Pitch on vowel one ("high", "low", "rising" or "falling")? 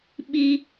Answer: high